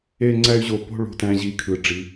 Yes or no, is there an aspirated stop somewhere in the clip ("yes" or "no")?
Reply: yes